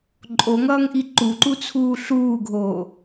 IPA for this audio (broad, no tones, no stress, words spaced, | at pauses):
ǃʼoŋʌːŋʔi ǃuǃut͡sʰuː ɬuːɡʱoː